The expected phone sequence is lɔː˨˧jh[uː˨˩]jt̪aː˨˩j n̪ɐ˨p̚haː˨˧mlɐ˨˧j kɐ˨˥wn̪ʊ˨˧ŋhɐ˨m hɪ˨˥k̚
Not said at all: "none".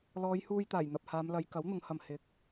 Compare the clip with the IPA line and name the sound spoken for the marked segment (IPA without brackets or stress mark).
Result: uː˧